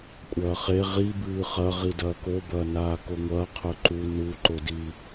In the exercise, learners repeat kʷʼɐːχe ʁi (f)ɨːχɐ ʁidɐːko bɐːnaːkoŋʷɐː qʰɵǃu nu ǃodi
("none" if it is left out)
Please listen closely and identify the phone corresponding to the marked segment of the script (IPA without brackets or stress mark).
b